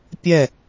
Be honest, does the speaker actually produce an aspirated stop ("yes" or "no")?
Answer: no